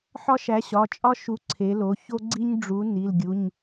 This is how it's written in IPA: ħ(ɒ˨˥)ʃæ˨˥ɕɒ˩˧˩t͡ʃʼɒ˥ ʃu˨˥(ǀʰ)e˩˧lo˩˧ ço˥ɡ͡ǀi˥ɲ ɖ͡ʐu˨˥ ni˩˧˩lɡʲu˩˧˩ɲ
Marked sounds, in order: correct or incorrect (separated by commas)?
incorrect, correct